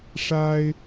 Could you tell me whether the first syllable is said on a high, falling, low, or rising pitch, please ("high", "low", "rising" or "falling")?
high